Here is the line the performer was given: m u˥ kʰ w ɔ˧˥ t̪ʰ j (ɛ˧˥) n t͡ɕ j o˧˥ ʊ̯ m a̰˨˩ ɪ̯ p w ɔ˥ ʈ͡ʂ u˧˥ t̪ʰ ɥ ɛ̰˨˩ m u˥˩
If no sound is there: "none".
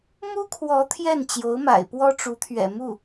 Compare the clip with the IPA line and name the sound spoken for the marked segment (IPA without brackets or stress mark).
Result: ɛ˥˩